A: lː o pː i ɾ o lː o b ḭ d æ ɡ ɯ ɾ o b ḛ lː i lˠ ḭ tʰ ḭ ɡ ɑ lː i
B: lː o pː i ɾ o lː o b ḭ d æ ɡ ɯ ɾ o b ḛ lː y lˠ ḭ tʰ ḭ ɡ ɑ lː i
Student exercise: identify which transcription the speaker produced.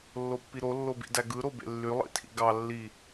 B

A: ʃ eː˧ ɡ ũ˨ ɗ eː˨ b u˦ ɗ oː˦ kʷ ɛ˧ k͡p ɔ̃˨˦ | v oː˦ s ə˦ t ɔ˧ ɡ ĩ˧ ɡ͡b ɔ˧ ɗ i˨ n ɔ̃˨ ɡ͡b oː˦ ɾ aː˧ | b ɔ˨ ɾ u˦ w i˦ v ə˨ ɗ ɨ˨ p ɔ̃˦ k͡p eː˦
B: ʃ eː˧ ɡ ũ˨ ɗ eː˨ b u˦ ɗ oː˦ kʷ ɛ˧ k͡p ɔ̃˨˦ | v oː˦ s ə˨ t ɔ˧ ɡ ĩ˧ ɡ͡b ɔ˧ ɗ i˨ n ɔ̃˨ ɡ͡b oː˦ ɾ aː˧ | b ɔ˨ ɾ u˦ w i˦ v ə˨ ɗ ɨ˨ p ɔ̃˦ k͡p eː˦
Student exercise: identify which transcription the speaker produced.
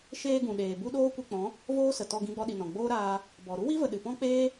B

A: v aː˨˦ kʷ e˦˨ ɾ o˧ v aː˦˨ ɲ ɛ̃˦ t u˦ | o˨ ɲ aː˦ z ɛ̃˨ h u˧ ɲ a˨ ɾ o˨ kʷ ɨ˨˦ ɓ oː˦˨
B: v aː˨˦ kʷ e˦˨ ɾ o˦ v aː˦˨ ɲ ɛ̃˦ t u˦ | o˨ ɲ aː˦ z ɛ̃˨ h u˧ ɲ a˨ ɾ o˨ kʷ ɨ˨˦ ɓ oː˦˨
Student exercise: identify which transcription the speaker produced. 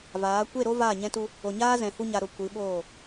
B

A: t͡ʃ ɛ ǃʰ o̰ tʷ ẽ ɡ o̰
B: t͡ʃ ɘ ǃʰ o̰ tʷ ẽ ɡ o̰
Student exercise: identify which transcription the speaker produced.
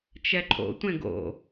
A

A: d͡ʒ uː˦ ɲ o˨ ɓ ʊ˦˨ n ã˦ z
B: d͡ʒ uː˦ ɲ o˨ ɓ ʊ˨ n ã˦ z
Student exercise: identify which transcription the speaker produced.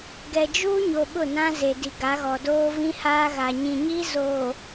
A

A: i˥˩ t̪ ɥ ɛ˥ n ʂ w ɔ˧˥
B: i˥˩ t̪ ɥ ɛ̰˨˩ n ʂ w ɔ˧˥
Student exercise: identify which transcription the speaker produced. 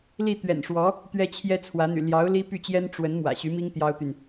B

